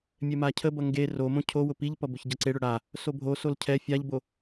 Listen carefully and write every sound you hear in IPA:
mʲɛmacʰəbʌ ŋɡe romõ cʰowʊ piʎpʌ bʊçɟʌǀeɽʊ ɽa | sobʱosol cʰɛ fʲaʎbo

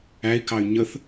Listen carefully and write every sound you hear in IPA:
æi̯kɑy̯ ɲəθ

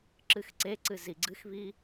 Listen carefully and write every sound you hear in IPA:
ǁɨxǀeǀɨ ziɡ͡ǀɨxβi

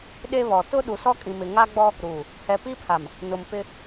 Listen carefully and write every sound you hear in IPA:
ɗe˦βɔ˨ tʊ˦ ɗu˨sɔ˦kʼĩ˨mɪ˨ ŋa˦ɡ͡bɔ˦ | ɾuː˨ | hɛ˨pi˦pʰa˨m | nʊ˨mpɪ˦

